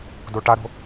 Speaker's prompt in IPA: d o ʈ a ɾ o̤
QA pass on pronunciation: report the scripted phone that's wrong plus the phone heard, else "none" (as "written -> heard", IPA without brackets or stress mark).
none